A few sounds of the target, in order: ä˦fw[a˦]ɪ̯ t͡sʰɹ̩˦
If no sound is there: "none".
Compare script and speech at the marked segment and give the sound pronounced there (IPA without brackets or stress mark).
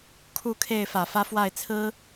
a˥˨